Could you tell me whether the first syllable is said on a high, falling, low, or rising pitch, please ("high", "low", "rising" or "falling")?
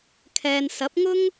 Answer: low